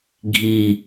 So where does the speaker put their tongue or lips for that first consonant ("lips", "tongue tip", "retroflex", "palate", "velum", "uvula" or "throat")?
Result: velum